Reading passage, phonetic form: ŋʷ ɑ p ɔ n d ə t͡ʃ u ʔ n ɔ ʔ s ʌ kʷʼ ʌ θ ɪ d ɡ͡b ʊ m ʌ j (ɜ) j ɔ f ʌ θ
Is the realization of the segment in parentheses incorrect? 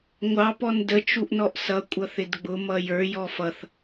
yes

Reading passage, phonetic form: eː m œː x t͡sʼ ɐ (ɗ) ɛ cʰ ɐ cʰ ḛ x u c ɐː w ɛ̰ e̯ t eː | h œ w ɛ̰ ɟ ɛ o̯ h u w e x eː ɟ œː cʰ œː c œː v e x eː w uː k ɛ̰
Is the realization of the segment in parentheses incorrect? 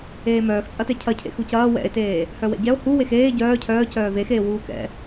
yes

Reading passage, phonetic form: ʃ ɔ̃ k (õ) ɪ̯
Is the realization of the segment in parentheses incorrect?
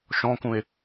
yes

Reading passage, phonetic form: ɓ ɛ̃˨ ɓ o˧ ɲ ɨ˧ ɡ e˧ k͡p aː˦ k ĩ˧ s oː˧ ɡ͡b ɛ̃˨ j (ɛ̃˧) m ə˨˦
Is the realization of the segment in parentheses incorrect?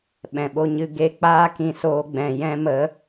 no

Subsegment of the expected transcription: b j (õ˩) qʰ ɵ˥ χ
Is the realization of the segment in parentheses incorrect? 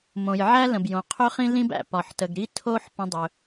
no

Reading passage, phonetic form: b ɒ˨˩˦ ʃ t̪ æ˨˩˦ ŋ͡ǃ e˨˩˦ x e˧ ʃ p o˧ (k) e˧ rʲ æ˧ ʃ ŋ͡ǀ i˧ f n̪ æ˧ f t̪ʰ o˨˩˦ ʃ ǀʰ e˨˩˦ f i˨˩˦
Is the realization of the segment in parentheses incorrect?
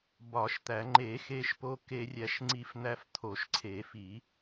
no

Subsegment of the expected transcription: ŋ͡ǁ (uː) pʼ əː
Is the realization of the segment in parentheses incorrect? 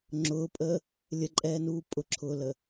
yes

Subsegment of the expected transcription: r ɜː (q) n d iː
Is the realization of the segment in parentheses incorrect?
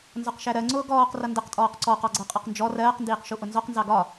no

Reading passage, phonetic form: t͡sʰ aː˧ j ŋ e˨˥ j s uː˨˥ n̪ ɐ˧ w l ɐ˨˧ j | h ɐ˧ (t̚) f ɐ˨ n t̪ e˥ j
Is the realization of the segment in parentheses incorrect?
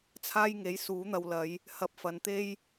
yes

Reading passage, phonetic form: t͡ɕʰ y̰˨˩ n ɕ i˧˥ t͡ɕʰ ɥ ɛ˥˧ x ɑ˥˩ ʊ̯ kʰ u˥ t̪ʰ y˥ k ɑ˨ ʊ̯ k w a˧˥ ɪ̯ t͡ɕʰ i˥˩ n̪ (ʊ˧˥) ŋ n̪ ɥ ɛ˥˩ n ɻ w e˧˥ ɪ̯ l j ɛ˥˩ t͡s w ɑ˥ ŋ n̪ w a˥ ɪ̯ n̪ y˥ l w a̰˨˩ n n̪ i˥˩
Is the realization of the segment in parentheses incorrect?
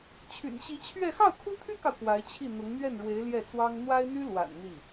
no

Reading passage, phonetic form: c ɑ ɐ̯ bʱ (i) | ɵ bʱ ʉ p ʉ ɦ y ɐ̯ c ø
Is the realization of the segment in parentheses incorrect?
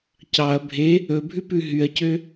yes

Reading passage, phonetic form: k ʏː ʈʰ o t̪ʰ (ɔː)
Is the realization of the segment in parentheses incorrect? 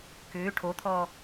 no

